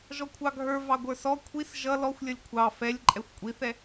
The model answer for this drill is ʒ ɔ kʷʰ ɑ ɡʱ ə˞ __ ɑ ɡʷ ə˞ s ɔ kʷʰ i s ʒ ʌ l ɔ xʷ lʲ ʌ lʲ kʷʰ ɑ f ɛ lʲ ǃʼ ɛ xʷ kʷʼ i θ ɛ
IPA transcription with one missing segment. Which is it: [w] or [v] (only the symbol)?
v